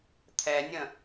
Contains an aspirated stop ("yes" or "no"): yes